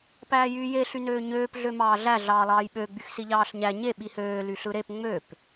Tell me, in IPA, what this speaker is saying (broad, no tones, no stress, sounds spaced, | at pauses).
p æː j yː j e ɬ y n øː ɲ øː p ɮ ø m ɑː ɮ æ ɮ ɑː lˠ ɑː j ɓ ø ɡ͡b y x s i ʎ ɑː ɬ ɲ æ ɲ e ɓ i h øː l y ɬ ɯ ɾ e p ŋ͡m ø p